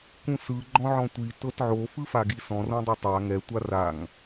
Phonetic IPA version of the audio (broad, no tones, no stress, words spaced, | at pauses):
kũsɯ ɡ͡ǃɔ̃ʕɔ̃tʷi tɤtʕo fɯfaɡisɔ̃ rõdˤotˤa ŋɛ tʷaraŋ